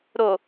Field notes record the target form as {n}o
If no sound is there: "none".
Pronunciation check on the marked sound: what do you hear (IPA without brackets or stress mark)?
ɾ